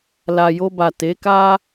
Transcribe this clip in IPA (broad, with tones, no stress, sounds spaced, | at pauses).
l a˨ j o˧ b a˨ t e˨˦ k a˦